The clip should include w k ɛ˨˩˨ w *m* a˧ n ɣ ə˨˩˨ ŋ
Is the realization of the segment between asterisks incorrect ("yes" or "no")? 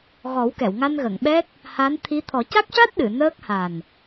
yes